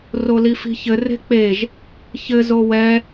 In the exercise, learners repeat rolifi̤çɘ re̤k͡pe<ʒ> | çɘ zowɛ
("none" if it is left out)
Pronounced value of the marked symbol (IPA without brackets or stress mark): ʒ